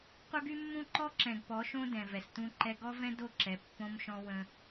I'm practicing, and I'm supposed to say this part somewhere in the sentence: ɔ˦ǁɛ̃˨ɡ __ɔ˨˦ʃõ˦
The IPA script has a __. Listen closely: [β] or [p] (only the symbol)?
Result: p